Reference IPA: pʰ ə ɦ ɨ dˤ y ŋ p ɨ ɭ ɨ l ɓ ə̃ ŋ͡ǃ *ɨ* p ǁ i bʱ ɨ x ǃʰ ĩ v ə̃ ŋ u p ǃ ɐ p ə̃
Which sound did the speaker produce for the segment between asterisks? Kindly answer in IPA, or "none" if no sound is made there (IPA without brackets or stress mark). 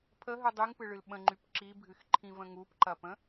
y